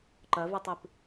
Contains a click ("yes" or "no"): yes